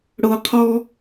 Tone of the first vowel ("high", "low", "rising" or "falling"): low